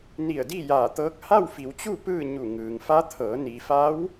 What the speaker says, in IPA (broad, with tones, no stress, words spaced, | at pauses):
ni˧˩ə̯diː˥˨jaː˧˩t̪ɤː˧˥k̚ ha˥˨wfi˩˧wt͡ɕu˥˨ pɯː˥˨ ɲu˧˩ŋɯː˩ŋfa˧˥t̪ʰɤː˩˧ ni˩fa˧˥w